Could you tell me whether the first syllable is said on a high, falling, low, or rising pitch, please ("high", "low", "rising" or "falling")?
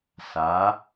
rising